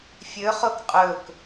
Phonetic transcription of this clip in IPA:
fʲ ɵ χ o k qʼ ɵ k

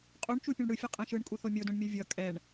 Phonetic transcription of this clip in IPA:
qʼ u ɳ t͡ʃ u pʲ ũ ɳ ɽ ɯ fʲ ʌ qʼ ɛ̃ ʃ ɯ ɳ kʼ u θ o mʲ o d õ ɳ mʲ ʌ vʲ ʌ kʼ ɛ ɳ

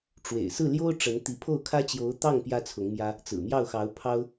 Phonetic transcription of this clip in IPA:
ʈ͡ʂ w ḛ˨˩ ɪ̯ s ɹ̩˥˩ l j o˥ ʊ̯ ʈ͡ʂ ə˧˥ n t̪ i˧˥ pʰ o˥˩ ʊ̯ kʰ ä˥ t͡ɕ j o˧˥ ʊ̯ t̪ ɑ˥˩ ŋ p j ä˥ t͡sʰ ʊ˧˥ ŋ m j ä˥ | t͡s ɹ̩˨˩ m j ɑ˥˩ ʊ̯ x ɑ˧˥ ʊ̯ pʰ ɑ˥ ʊ̯

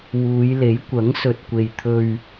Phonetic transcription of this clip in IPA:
w uː˨˧ j l e˨˥ j kʷ ɐ˨˥ ŋ s ɵ˨ t̚ kʷ e˨ j t̪ʰ ɵ˧ ɥ

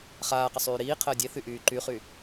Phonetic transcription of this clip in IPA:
χ aː q ə sˤ yː ɾ iː qʰ əː dʲ e θ y ʔ yː ǃ y χ y

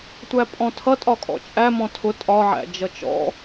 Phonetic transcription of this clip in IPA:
tʷ æ pʼ ɔ̃ tʰ ʌ tʼ ɒ kʼ ɔ̰ t͡ʃʼ æ m ɔ̃ tʰ ʊ tʼ ɒ ʕ æ̰ d͡ʒ ʌ t͡ʃ ɔ̰

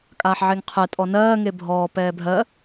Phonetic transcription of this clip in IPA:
kʼ aː ħ ʕ e ŋ qʰ ɛ tʼ ɔ n ɜː ŋ e bʱ ɔː p ɛː bʱ ɜ

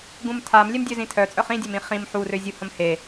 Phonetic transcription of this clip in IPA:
ɡ ũ m tʰ a m lʲ ɛ m dʲ ø z ĩ tʰ œ t͡sʼ œ χ ĩ dʲ œ m ĩ χ ĩ m ħ u r ø zʲ u h ə̃ m h e

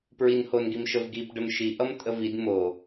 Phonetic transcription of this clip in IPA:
p ɹ i n h o n ɡ i m ʃ ə v ɡ i p ɖ ə m ʃ i ʔ ʌ m tʼ ə v i d m o

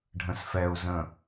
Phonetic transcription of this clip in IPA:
ɖʱ ə̃ s f ɛ u̯ z ə̃

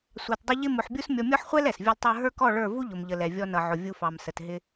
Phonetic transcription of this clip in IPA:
sʷ ɑ˧ t dˤ ɪ˦ ʎ ɪ˦ m ʊ˧ ħ bʲ u˦ s mʲ ɔ˧ mʲ ɔ˦ ħ χʷ ɛ˦ l ɛ˨ s vʲ ɔ˦ l tˤ ə˞˦ ɦ ə˞˦ k ɔ˦˨ ɭ ə˞˦˨ v u˦ ʎ ʊ˨ m ʎ ə˨ l ɛ˨ vʲ ɔ˧ n ʌ˨ ʕ ʊ˨ vʲ u˧ f ɑ˨ m s ə˨ t ɦ ɪ˧

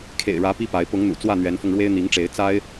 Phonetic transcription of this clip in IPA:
kʰ ḛ˨˩ ɪ̯ ɻ ä˨˦ p i˦ p a˨˦ ɪ̯ p ʊ˨˦ ŋ n̪ ṵ˨˩ t͡s w ä˥˨ n̪ ɥ ɛ˨˦ n f ʊ˧ ŋ ɻ w e˦ ɪ̯ n̪ i˨˦ ŋ ʈ͡ʂ e˨˦ ɪ̯ t͡s a˦ ɪ̯

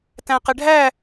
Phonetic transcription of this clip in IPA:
t æ̃ q ɪ ɖʱ æ

